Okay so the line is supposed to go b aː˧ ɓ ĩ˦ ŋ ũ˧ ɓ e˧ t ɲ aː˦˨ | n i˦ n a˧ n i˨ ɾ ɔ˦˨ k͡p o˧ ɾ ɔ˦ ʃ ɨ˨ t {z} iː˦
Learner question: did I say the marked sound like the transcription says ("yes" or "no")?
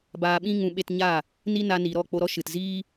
yes